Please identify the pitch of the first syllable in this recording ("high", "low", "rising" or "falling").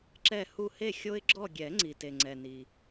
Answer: falling